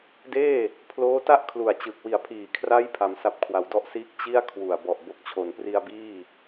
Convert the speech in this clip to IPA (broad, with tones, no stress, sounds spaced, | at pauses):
d eː˥˩ | pʰ l oː˦˥ t a˥˩ ʔ kʰ l u˨˩ a̯ t͡ɕ ɯ˨˩ k̚ w i˨˩ a̯ pʰ iː˨˩ kʰ r a˦˥ j pʰ a˩˦ m s a˨˩ p̚ kʰ w a˩˦ w d ɔ˦˥ ʔ s iː˦˥ k̚ t͡ɕ i˥˩ a̯ kʰ w u˨˩ a̯ b ɔ˨˩ ʔ b o˨˩ k̚ t͡ɕʰ o˩˦ n p r i˧ a̯ b iː˥˩